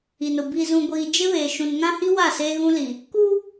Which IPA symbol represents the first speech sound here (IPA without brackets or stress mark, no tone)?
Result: i